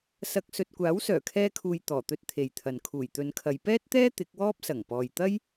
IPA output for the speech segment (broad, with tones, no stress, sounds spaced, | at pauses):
s ɐ˧ k̚ s ɵ˧ t̚ kʷ aː˨˥ w s œː˨˩ kʰ ɛː˧ kʰ uː˨ j t̪ ɔː˨˩ t̪ ɵ˧ t̚ t̪ʰ e˨ j t̪ʰ ɐ˨ n kʰ uː˨˩ j t̪ ɵ˨˧ n kʰ ɐ˨˧ j p ɛː˥ t̚ t̪ ɛː˥ t̪ ɪ˨˥ k̚ w ɔː˥ p̚ s ɐ˨˩ ŋ p ɔː˨ j t̪ ɐ˥ j